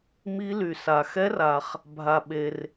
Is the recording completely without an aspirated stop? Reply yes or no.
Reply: yes